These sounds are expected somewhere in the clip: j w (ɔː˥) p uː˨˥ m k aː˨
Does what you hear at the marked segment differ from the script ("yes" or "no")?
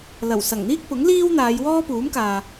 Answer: no